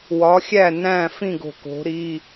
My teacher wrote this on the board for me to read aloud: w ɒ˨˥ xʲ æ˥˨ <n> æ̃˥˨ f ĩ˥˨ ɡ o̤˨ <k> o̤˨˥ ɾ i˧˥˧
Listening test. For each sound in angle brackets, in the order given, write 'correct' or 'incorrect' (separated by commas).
correct, correct